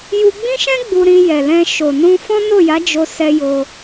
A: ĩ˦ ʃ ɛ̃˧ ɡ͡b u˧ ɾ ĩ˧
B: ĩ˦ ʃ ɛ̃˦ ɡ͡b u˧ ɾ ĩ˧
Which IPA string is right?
B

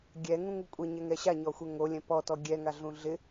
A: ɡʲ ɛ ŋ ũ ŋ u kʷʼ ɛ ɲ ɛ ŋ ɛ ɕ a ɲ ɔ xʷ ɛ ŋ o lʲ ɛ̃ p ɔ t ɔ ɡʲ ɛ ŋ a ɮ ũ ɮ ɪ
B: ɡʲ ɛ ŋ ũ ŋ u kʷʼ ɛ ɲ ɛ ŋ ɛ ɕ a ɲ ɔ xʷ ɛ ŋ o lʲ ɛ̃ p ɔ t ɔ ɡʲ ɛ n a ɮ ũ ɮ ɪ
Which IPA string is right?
A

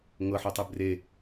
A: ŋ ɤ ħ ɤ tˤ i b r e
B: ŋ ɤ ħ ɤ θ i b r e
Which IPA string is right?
A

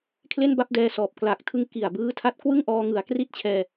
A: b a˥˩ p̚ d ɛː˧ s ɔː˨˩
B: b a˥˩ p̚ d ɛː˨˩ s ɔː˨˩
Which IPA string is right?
A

